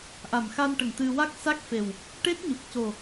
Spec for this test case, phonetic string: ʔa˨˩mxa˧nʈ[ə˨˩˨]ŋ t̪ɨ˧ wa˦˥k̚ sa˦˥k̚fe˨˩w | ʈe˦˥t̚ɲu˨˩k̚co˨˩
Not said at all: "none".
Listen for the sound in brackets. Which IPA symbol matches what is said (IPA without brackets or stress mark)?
ə˨˩